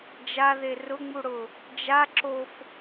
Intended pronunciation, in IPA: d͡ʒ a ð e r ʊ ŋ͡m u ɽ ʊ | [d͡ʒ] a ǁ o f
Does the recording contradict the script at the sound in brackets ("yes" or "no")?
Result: no